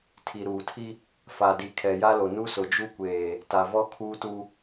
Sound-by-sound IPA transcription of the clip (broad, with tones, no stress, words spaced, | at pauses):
tʰi˨ɾuː˨tʰi˦ | fa˨di˨ kʰɛ˨ja˦lo˨ nu˦sʊ˨d͡ʒu˦kʷeː˨ | ta˨vɔ˦ kʰuː˦tu˦